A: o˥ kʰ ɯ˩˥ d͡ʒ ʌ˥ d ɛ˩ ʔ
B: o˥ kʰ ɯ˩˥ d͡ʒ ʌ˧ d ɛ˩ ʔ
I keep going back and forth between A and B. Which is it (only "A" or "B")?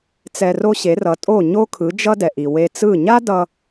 A